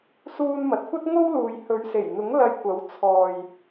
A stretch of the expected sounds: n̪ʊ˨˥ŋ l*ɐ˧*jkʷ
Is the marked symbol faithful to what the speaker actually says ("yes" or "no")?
yes